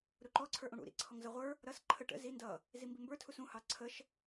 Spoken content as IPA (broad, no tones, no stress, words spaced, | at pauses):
ɾuǃɔ ǀʰə˞ʔũɽṵ ɾḭǀʰɔŋzʌ ʁʷə˞ | ɾʌs ǃʰə ʈə̰ zi ndʌ | zimbimbə˞ tʰusũ hɑǀʰəʃ